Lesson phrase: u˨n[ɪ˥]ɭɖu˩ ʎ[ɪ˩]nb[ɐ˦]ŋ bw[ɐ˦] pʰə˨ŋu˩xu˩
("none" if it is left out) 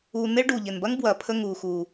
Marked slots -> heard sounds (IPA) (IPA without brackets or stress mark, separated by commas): ɪ˦, ɪ˩, ɐ˦, ɐ˩